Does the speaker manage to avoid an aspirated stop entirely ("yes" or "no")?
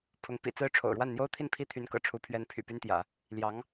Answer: no